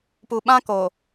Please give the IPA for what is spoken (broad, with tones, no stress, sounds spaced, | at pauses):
p u˨ ɓ ã˦ k oː˨